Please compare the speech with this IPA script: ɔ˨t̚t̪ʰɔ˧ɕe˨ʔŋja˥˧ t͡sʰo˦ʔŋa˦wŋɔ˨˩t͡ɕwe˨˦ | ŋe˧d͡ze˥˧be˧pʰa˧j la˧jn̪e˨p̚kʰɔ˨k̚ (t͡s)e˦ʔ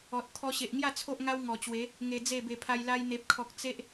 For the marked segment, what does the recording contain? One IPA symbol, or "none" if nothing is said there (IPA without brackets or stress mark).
t͡s